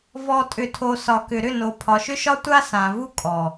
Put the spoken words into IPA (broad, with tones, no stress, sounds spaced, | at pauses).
v ɔ˨ tʼ ʏ˨ tʰ o˨ s ɒ˨ k ʏ˨ ɾ ʏ˦˨ n o˨ pʰ ɒ˨ ʃ ʏ˦ ʃ ɒ˦ tʷ a˦ s ã˨ v u˦ kʼ ɔ˨